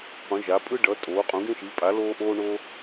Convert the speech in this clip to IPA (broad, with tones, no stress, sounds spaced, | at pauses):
q ũ˩˥ ʒ a˩˥ pʼ ɯ˥ ɖ ʌ˩˥ tʼ oː˩˥ qʼ ũ˩˥ ɡ ẽ˥ ʃ i˩˥ pʼ a˩˥ l oː˥ ʔ oː˥ ɳ o˥